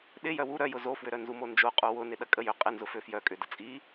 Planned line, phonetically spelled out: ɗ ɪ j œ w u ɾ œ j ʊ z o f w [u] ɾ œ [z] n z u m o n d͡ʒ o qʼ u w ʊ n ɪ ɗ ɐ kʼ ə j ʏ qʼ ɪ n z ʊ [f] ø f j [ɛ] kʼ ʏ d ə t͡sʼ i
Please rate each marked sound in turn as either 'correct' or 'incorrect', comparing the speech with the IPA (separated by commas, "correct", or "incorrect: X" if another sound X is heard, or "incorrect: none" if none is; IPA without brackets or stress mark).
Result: incorrect: ʏ, incorrect: none, correct, incorrect: œ